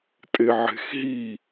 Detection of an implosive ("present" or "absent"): absent